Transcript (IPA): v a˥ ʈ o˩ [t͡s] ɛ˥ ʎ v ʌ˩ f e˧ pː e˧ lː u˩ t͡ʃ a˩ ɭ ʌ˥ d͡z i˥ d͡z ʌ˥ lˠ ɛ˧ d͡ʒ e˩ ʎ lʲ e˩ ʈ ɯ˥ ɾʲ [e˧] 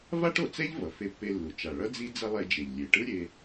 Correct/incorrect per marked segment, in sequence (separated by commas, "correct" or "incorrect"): correct, correct